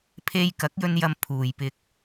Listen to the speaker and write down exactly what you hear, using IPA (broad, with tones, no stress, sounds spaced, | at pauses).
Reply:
pʰ e˧ j k ɐ˨˥ k̚ j ɵ˧ n j ɐ˧ m pʰ uː˨˧ j p ɪ˧ k̚